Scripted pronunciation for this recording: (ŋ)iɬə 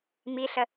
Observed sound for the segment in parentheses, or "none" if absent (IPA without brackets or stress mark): m